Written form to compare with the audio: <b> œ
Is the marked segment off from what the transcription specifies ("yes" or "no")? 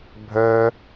yes